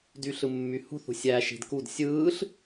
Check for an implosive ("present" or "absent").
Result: absent